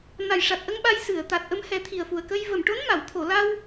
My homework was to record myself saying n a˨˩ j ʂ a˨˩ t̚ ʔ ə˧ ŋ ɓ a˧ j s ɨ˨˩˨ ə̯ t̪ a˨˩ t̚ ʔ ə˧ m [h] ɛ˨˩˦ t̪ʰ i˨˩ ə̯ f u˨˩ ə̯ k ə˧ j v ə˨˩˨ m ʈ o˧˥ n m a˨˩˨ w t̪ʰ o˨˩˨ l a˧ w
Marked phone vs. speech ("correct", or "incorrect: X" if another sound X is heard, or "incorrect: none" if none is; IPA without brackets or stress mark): correct